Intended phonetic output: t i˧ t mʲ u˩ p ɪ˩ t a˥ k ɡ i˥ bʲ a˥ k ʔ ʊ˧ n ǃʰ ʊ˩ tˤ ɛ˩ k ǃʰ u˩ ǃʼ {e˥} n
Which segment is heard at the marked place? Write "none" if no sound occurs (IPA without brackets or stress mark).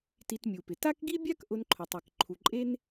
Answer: e˥